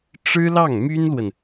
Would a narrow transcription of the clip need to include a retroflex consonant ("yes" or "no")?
yes